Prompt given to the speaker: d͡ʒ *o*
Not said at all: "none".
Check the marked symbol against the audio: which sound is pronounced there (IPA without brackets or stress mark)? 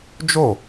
o